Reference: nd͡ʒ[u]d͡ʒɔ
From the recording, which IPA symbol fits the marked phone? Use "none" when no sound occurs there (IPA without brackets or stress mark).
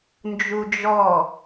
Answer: u